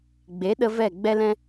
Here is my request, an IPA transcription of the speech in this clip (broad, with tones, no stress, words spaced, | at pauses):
ɡ͡be˨˦ɗə˧ vɛ˦˨ɡ͡bɛ˦lɛ̃˦